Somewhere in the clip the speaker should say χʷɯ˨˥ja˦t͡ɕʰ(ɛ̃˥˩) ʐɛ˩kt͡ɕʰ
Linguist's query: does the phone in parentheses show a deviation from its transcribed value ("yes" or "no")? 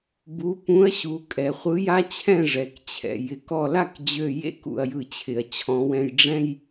no